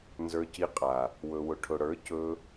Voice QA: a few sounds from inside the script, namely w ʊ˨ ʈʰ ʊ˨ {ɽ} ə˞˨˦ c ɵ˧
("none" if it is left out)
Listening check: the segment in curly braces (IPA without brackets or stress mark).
ɽ